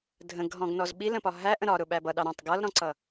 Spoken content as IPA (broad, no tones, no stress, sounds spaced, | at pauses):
dʱ ə̃ ɡ ɦ ɔ̃ ɡ n ɔ z ɓ i l ə̃ p ɒ ɦ æ ʔ ə̃ ɾ ɒ ɾ ʊ ɓ æ b ʌ ɗ ɑ ɾ ɔ̃ tˤ ɡ ʌ l ɾ ɔ̃ ǀ ʌ